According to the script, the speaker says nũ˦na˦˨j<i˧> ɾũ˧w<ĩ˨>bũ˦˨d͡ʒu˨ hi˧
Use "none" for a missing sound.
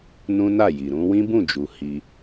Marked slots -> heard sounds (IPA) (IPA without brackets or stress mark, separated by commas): i˨, ĩ˦